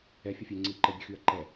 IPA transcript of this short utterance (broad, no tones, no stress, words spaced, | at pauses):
ɛ fʲɛfʲeːŋ͡ǀiːǃɛ bʲøxyːɐ̯ǃɛ